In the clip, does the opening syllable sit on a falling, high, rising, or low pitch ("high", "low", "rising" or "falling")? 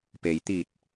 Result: low